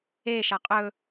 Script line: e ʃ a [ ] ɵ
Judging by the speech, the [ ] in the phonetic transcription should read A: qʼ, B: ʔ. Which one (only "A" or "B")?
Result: A